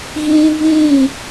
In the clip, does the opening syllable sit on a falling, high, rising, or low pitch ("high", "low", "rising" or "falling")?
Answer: high